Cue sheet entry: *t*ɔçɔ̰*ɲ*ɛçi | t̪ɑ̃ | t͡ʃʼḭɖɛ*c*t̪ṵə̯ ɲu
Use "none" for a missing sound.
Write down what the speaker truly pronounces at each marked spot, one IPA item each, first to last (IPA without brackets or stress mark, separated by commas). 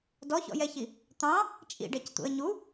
d, j, c